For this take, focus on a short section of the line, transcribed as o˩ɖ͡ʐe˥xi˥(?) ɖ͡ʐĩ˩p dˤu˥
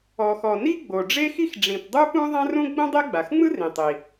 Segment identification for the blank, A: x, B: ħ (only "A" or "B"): A